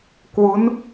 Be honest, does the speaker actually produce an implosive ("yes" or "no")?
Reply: no